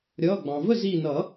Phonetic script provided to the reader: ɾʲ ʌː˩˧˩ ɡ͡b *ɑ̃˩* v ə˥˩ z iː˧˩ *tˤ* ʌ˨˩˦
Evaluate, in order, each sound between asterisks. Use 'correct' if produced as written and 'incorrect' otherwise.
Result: correct, incorrect: n

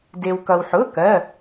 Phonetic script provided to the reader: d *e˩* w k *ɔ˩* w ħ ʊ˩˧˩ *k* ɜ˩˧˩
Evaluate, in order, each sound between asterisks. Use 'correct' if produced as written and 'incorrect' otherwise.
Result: correct, incorrect: ʌ˩, correct

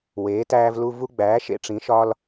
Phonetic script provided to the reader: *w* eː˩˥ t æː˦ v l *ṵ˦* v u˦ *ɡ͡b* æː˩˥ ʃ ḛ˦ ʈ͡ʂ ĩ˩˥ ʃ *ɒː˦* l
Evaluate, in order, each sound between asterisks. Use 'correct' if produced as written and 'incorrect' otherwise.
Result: correct, incorrect: u˦, correct, correct

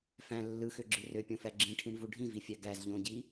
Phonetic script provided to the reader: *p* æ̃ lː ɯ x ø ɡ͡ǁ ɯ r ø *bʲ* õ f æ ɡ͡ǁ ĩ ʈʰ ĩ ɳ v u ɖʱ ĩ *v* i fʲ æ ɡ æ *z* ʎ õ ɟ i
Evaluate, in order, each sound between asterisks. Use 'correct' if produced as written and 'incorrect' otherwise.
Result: incorrect: f, incorrect: pʲ, correct, correct

